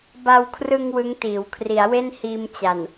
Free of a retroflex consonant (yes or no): yes